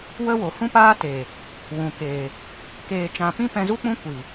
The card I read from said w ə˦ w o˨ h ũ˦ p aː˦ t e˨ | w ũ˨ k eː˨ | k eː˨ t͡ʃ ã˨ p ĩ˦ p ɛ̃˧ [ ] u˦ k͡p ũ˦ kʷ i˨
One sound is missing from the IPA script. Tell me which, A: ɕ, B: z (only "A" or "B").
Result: B